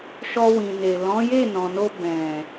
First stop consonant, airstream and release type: plain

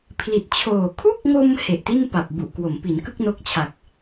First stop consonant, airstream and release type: aspirated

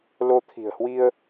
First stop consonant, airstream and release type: aspirated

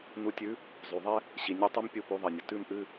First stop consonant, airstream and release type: plain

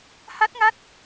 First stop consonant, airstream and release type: plain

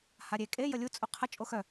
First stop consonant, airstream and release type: ejective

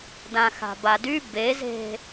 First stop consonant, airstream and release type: plain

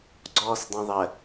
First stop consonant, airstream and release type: click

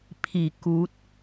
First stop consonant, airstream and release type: aspirated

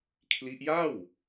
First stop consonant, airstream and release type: aspirated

